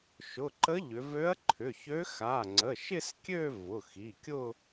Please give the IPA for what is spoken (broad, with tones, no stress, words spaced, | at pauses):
ʃʊ˩˧˩ǃə˧˥ ʎʏ˩˧ vø˧˥ɐ̯ǃʰʏ˩˧˩çø˧˥ xa˩˧˩ŋ͡ǀə˩˧˩ʃɪ˥˧skʲø˥˧ vʊ˩˧˩xi˩˧˩kʲʊ˥˧